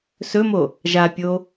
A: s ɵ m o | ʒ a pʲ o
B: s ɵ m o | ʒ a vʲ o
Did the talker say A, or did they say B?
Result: A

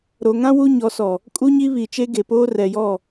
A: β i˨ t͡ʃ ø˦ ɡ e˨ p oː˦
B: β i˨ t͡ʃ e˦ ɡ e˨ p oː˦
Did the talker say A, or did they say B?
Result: B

